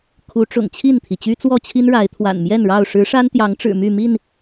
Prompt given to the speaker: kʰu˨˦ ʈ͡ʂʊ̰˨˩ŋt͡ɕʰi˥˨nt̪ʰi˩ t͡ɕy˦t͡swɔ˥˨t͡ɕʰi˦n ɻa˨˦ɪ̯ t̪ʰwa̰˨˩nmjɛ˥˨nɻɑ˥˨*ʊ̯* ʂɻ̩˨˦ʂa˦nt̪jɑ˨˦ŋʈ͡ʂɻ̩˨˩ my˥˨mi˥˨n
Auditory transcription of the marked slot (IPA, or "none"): ʊ̯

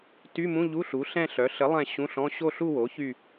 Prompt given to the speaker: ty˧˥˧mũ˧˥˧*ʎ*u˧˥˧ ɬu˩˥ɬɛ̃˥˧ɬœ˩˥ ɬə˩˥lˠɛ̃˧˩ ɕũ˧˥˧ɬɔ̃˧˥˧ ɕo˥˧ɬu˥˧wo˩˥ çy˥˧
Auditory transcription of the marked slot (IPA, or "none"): ʎ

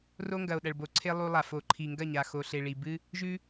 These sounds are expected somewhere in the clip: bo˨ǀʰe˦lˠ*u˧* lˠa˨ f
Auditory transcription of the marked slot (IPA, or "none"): u˧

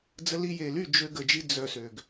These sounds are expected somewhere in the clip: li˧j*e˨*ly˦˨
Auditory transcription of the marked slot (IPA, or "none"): e˨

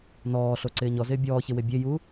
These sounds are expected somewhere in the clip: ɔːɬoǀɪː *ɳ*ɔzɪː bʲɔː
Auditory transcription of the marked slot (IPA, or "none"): ɲ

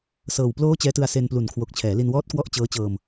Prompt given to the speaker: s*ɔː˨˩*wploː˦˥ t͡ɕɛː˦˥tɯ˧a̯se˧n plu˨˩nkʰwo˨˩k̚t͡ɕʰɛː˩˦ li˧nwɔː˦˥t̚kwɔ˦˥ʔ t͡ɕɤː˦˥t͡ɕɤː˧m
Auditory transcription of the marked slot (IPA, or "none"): ɤː˨˩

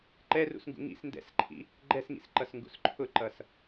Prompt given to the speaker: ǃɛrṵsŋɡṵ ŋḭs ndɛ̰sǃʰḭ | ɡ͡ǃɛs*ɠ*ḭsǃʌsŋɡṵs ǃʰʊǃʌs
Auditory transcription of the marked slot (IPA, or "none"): ŋ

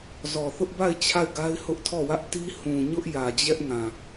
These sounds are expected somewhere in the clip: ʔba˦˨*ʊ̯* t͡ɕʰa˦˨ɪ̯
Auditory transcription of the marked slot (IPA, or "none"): ɪ̯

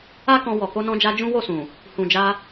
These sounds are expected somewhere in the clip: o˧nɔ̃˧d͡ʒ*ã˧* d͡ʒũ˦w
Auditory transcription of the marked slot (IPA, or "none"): a˧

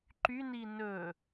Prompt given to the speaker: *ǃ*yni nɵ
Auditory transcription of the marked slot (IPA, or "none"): ǃ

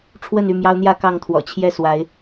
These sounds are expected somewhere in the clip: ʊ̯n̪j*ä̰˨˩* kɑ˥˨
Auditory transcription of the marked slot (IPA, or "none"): ä˥˨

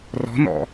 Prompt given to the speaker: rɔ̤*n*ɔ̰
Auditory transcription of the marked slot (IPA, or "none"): n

